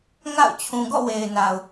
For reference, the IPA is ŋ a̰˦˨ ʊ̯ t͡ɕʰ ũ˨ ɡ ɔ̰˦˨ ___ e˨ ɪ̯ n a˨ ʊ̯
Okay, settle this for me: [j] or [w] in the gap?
w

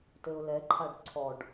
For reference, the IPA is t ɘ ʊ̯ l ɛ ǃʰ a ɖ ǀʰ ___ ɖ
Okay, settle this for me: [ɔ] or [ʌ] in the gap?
ɔ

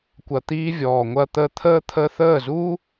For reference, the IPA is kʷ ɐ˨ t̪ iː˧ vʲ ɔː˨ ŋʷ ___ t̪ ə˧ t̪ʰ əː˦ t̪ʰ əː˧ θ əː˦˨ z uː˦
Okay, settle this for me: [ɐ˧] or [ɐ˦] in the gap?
ɐ˧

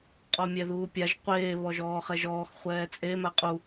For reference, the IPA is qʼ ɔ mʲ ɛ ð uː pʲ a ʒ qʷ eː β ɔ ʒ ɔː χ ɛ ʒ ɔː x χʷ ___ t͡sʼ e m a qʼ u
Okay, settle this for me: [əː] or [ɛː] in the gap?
ɛː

